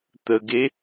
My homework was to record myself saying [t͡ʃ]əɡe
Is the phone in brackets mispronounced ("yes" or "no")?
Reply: yes